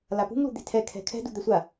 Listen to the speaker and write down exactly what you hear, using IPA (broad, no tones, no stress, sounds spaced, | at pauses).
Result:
l a p ṳ ŋ l ṳ d̪ e̤ tʰ ɛ kʰ ɛ̤ kʰ ɛ̤ d ṳ d̪ ɛ sʷ a